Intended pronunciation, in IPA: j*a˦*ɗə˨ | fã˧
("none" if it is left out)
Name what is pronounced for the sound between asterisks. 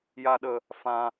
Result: a˨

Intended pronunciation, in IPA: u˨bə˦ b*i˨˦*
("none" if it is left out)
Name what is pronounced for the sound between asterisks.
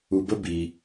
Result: i˨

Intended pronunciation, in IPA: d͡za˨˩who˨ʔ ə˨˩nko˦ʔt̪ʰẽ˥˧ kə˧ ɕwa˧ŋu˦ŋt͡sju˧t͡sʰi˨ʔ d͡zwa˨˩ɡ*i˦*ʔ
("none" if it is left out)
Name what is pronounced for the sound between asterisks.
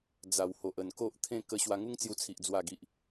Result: i˨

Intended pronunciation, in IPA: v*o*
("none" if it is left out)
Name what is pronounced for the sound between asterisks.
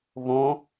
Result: õ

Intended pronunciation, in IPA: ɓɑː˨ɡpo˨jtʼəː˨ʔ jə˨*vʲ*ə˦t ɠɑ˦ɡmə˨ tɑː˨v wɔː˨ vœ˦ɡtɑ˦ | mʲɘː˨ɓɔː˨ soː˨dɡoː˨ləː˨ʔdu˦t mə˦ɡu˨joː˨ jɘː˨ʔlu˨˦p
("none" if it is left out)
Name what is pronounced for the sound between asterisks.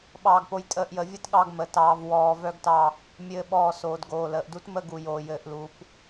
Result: vʲ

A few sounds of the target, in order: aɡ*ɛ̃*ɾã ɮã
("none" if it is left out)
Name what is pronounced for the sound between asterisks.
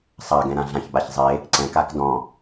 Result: ɛ̃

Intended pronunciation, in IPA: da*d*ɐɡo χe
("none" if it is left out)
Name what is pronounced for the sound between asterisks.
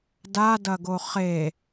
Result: d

